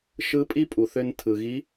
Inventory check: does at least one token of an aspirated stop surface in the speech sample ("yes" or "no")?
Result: yes